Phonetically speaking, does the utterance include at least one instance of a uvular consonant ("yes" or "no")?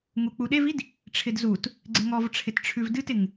no